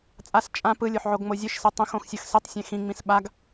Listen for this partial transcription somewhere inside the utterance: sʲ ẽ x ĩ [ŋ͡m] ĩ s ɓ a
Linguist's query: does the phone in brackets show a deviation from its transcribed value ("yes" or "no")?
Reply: no